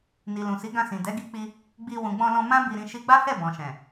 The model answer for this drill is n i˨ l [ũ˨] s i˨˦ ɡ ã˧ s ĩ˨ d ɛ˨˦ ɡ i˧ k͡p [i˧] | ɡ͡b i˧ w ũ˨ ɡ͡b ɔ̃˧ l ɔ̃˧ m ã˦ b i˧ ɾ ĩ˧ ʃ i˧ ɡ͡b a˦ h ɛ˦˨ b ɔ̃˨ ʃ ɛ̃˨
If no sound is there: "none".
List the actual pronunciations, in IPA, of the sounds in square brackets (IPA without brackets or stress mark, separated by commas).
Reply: ũ˨, i˧